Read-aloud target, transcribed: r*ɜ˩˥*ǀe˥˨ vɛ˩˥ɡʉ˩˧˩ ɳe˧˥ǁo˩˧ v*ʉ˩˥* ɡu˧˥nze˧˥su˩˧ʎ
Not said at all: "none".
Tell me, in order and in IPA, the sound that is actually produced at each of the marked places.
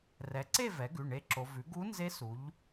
ɛ˩˥, ʉ˩˥

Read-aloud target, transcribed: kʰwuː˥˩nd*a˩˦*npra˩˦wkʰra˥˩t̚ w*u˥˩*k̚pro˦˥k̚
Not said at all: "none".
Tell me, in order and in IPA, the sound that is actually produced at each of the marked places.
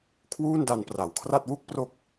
a˧, u˥˩

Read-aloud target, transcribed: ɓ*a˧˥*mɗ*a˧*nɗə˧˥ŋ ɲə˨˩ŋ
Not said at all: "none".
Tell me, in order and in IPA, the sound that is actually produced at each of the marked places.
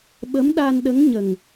ə˧˥, a˧

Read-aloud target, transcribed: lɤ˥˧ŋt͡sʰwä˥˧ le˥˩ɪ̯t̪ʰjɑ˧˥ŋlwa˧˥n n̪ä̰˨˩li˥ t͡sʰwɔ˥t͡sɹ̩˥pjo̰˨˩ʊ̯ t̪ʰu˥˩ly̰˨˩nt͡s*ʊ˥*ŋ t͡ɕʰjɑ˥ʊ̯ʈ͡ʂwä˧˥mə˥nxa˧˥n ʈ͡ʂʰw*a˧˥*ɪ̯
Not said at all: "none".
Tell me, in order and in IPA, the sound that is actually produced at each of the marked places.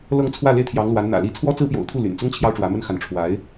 ʊ˥, a˧˥

